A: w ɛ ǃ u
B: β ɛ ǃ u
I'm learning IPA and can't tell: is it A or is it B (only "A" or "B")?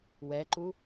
A